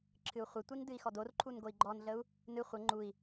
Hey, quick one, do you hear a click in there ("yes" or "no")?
yes